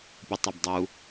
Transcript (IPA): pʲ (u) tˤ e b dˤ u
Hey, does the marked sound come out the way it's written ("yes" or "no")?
yes